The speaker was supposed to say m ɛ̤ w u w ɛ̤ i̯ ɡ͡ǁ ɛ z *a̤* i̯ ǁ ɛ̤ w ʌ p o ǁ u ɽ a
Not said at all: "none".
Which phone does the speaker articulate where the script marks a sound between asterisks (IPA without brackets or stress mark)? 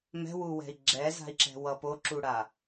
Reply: a̤